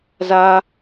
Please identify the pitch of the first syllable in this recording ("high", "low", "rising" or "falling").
high